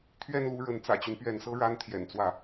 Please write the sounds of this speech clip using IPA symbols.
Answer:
t̪ʰ ɥ ɛ˥˧ n l u˥˩ ɻ ə˧˥ n t͡s ä̰˨˩ t͡ɕ y˦ n p ɥ ɛ˧˥ n s ɤ˥ ɻ a˥ n t̪ʰ j ɛ̰˨˩ n t͡s w ä˥˩

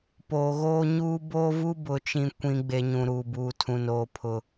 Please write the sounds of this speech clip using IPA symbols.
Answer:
p oː˨ ɣ oː˦ ɲ uː˦ b oː˦ v u˦ b ʊ˨ t͡ʃ ĩ˨ kʷ ĩ˨ ɡ͡b e˨ ɲ ũ˨ ɾ uː˨ b uː˨ tʰ ũ˨ n oː˨ pʰ ʊ˨

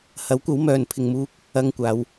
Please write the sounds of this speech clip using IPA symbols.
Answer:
h ɐ˨˥ w kʷ ɐ˨˥ w m œː˨ n pʰ ɪ˨ ŋ m uː˧ k̚ | ɐ˧ ŋ kʷ aː˨˧ w

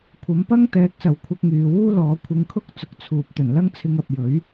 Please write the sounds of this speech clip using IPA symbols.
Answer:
kʷʰ ɐ˨˥ m p ɐ˥ ŋ t̪ ɛː˨˥ k̚ s ɐ˨ w kʷʰ ɐ˧ k̚ ŋ yː˨ w uː˥ l ɔː˨˥ kʷʰ ɪ˧ ŋ kʰ ʊ˥ k̚ t͡s ʊ˨˥ k̚ t͡sʰ uː˨ p̚ t̪ ɵ˨˩ n l ɐ˥ ŋ t͡sʰ ɪ˧ ŋ ɐ˨ p̚ j ɵ˨˥ ɥ

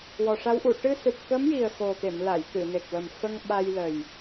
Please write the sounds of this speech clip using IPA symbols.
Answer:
w ɔ˨˩ ʂ a˧˥ w ʔ u˨˩˨ ʈ ɨ˧ s ɨ˨˩ p̚ k ə˧˥ m j i˨˩ ə̯ x o˨˩ t̪ e˨˩˨ m l a˨˩˨ j t̪ ɨ˨˩˨ n e˨˩ k̚ w ə˨˩ m f ə˧ ŋ ɓ a˧ j l ə˨˩ j

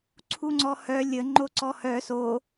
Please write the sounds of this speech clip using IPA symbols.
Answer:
ǀʰ u ŋ͡ǀ ɔ h œ lʲ ə ŋ͡ǃ o ǀ ɔ h œ s o

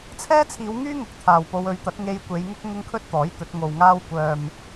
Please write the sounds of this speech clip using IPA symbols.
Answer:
t͡sʰ ɛː˥ t͡sʰ iː˨˧ w ŋ yː˥ ŋ ʊ˨˥ k̚ t̪ʰ aː˨ w p o˧ w ɵ˨˧ ɥ t̪ ɐ˨˥ t̚ ŋ e˧ j kʷ e˨˧ j ŋ ʊ˥ k̚ ŋ ʊ˥ ŋ kʰ ɵ˥ t̚ t̪ ɔː˨˥ j t̪ ɵ˨˥ t̚ ŋ o˨ w ŋ aː˥ w kʷ œː˨ m

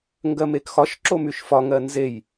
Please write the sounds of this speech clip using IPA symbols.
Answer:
ŋ ɡ ɜ m e k x ɒ ʃ ǁ o m y ʃ f ɒ ŋ ɜ n z e j

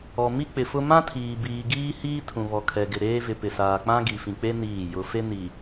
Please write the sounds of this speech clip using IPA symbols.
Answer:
ɔ˨ m i˦ k͡p ɪ˨ f ʊ˦ m ã˦ tʰ iː˨ b iː˨ ɡ iː˦ h iː˦ tʰ ũ˨ β ɔ˨ kʰ ɛ˨ ɡ ɪ˨ ɾ eː˦ v ɪ˨ p ɪ˨ s aː˨ k͡p ã˦ ɡ i˨ f ĩ˨ k͡p e˦ n iː˦˨ j ʊ˨ f e˦ n i˨

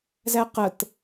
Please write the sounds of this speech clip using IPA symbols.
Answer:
z æ q ə t

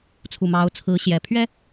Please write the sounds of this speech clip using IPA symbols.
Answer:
t͡sʰ u˨˩ m ɑ˧˥ ʊ̯ t͡sʰ ɹ̩˧˥ ɕ j ɛ˨˩ pʰ ɥ ɛ˥

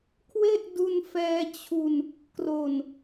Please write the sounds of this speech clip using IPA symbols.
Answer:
kʰ w e˥˩ ʔ d u˧ n f ɛː˧ t͡ɕʰ u˧ n | k r o˨˩ n

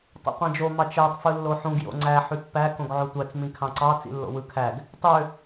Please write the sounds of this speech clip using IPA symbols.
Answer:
tˤ ḛ qʷ æ̃ d͡ʒ o m ɑ t͡ʃ æ tˤ f ɯ lː o ħ ũ ɡ j o̰ ŋ͡ǀ æ ħ y pː æ k õ ɡ ʕ o tʷ æ t͡s m ĩ kʰ ɑ̃ ǀ ɑ t͡s ḭ lː o̰ w ɯ kʰ æ ɡ | tˤ ø

